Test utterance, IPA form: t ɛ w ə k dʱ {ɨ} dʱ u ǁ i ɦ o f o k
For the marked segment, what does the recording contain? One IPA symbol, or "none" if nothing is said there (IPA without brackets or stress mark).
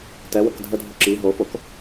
ə